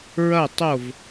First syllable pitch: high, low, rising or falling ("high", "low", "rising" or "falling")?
falling